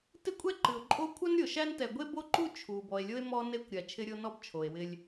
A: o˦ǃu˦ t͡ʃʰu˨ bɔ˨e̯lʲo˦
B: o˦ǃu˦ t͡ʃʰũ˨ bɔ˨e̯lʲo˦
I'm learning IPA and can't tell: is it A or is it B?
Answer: A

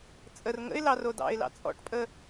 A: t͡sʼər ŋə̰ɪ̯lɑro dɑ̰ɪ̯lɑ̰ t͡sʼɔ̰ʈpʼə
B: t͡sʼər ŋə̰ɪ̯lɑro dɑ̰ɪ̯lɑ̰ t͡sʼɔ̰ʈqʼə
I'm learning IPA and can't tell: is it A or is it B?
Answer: A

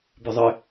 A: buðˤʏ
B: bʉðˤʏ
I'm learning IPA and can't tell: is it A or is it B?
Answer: B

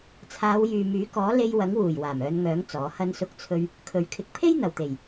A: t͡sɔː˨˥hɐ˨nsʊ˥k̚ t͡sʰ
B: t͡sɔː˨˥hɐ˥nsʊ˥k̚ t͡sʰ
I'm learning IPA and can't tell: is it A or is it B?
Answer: B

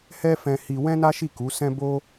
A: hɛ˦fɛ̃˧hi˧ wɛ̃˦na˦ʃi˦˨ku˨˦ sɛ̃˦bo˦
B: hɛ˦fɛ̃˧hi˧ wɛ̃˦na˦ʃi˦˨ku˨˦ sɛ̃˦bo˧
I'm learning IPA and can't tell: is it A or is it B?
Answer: A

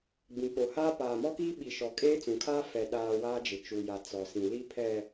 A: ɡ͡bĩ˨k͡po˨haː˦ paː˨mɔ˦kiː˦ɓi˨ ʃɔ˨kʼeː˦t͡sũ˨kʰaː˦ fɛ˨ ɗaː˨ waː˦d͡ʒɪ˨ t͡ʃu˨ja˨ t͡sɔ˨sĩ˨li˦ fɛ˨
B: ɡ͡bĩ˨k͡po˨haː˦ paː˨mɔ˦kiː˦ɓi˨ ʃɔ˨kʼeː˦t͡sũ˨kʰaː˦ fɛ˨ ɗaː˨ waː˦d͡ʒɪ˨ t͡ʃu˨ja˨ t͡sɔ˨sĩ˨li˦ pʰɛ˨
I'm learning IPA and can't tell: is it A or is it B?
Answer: B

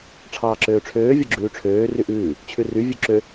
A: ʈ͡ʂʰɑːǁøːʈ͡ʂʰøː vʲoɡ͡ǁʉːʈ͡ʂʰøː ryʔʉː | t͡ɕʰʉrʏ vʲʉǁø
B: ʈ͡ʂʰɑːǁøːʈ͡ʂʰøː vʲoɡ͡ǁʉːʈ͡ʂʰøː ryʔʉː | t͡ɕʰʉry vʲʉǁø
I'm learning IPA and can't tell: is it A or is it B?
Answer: B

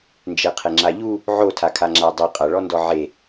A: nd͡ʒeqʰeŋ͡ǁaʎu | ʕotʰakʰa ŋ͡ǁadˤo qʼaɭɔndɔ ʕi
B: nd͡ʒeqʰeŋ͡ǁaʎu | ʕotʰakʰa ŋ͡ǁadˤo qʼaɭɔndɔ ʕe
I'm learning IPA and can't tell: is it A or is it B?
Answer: B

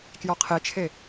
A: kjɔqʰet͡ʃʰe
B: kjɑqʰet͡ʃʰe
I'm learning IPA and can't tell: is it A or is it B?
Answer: A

